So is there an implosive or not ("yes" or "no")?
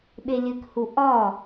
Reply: yes